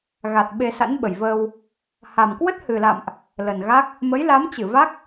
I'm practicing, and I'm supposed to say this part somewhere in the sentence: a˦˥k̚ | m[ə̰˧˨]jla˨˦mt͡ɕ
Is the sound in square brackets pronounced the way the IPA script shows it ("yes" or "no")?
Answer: no